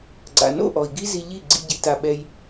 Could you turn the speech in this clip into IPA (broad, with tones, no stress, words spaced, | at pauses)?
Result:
ɡ͡ǀa̰˨no̰˦˨ʔɔ˨i̯ ɡi˦zi˧ ʎi˦˨ ɡ͡ǀḭ˧ ɟi˧ta˧ɓɛ˧j